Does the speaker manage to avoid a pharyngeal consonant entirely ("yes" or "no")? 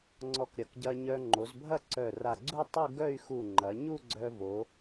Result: yes